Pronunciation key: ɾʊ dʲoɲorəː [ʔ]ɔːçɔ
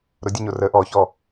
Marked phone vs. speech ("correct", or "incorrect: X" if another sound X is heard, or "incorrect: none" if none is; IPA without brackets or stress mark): correct